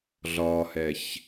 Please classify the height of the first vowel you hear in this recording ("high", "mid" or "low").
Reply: low